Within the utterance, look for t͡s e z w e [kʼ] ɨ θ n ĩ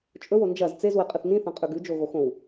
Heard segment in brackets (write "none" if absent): qʼ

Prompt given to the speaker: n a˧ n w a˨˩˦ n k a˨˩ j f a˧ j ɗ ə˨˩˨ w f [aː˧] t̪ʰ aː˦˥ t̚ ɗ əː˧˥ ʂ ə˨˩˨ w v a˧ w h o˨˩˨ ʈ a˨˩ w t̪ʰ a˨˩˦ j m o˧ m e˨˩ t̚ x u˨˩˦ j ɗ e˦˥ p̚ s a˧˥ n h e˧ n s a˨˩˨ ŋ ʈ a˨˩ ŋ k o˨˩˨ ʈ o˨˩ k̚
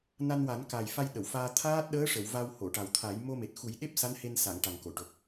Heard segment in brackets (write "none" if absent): aː˧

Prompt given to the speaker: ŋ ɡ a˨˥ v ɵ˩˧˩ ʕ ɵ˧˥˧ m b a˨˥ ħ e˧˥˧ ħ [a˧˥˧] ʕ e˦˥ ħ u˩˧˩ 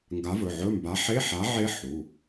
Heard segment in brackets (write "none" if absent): a˨˥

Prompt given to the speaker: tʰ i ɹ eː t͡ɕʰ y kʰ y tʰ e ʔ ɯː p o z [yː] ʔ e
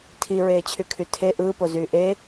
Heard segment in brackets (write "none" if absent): yː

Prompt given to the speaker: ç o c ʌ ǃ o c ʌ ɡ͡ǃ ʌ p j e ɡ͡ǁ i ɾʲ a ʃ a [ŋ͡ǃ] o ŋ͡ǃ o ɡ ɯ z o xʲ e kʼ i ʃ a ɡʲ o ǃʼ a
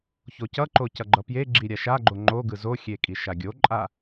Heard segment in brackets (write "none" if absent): ɡ͡ǃ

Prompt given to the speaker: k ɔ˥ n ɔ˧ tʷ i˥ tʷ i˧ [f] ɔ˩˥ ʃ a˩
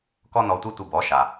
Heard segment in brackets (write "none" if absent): b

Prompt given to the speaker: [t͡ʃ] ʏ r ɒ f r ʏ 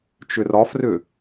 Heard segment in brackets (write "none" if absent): t͡ʃ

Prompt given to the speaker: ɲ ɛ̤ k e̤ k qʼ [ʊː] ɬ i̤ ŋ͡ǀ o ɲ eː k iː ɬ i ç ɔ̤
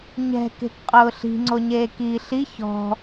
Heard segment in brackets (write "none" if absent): ʊː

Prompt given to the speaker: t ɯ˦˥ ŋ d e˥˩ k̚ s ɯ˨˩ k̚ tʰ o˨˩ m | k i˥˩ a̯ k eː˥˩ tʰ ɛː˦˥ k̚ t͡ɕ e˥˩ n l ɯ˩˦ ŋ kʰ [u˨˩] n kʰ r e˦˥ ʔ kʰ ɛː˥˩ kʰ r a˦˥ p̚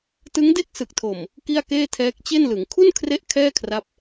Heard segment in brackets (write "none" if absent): u˥˩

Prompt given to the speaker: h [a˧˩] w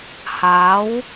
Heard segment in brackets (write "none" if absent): a˨˦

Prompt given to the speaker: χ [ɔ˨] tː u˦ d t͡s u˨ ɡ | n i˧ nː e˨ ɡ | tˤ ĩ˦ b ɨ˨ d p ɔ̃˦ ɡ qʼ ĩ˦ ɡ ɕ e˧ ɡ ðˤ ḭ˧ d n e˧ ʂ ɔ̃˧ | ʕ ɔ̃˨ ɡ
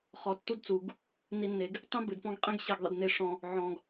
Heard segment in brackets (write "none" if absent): ɔ˨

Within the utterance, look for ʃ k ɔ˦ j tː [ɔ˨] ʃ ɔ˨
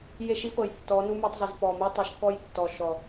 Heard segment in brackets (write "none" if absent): ɔ˨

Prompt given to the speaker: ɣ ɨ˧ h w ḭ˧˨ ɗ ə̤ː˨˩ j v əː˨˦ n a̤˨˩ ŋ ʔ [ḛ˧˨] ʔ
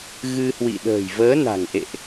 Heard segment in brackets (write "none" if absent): ḛ˧˨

